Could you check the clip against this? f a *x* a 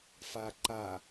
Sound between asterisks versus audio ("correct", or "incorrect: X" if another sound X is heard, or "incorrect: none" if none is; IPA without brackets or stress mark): incorrect: ǃ